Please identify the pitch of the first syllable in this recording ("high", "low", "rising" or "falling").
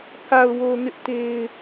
low